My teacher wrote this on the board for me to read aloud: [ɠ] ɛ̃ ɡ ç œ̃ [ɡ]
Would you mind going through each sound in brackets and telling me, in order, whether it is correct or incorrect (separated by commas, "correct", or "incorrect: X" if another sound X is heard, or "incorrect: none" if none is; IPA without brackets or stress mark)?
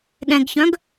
correct, correct